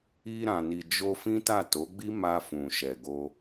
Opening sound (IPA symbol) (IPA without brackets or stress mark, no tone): i